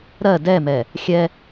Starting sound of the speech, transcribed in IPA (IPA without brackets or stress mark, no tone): ɾ